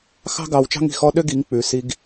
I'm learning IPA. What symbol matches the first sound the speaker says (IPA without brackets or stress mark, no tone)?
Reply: x